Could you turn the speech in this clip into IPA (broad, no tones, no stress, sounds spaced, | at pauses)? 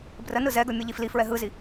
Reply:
b r ə n ɯ z ɛ ɡ ɵ mʲ ɯ ʎ i f l i f ɹ ɛ ɦ ɯ z i